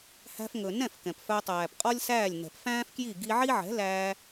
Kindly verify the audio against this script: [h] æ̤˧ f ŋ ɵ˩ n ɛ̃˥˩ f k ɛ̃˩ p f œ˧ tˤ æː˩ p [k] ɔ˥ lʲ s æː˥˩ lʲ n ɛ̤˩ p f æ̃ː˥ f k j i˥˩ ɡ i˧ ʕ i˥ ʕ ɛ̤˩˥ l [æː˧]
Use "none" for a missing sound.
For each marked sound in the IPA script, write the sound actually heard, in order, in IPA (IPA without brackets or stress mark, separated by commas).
h, qʼ, æː˧